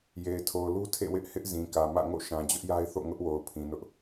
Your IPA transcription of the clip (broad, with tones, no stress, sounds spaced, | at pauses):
j e˨ ɪ̯ tʰ o˨ ʊ̯ l u˦ tʰ ḛ˦˨ w ɪ˦ ʔ h ɪ˦ ʔ z ĩ˨ k ä˨ m ä̰˦˨ ŋ o̰˦˨ ʃ ã˨ d͡ʑ ʊ˦ ʔ j a˦ ɪ̯ θ o̰˦˨ ŋ ʊ˦ ʔ w o˨ ʊ̯ pʰ ĩ˨ n ʊ˦ ʔ